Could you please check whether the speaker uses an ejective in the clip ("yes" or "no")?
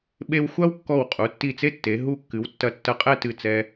yes